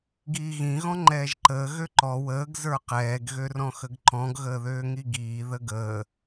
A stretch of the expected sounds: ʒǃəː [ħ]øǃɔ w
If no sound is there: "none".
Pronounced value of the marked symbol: ɣ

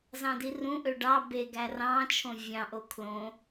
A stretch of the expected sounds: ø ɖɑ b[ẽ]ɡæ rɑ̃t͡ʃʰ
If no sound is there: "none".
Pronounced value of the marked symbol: e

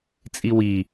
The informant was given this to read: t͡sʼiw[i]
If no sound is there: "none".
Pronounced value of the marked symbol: i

